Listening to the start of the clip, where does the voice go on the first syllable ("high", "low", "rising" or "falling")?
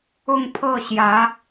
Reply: falling